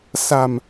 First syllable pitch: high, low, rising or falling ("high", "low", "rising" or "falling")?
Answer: low